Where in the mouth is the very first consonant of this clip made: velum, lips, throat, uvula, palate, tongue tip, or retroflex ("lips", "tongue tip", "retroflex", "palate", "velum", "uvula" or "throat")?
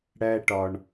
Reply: retroflex